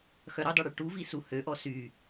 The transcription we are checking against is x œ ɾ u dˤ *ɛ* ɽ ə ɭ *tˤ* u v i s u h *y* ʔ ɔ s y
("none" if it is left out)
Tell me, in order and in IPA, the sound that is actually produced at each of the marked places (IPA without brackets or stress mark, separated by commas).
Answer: œ, ʈ, ø